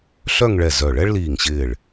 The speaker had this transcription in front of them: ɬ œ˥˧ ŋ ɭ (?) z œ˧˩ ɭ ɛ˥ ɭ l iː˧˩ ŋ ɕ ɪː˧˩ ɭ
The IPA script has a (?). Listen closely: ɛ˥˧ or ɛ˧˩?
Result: ɛ˧˩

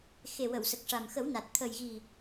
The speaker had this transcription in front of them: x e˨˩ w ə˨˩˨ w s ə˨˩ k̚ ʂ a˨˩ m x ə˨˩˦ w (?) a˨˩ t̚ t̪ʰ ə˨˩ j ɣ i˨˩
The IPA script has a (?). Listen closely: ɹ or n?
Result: n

